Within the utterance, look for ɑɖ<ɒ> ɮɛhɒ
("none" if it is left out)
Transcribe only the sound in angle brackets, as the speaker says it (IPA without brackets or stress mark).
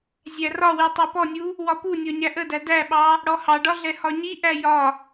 ɒ